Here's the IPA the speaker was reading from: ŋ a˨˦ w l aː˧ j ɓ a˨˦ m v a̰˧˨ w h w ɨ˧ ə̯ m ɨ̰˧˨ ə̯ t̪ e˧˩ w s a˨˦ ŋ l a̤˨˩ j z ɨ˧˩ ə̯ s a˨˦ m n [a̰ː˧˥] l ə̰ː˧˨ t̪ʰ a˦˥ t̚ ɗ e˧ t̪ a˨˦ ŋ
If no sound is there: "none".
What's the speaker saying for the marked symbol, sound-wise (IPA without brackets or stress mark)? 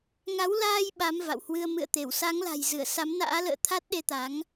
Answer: a̰ː˧˥